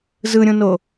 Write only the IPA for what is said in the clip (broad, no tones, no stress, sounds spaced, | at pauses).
z ɯ ɾʲ ũ n o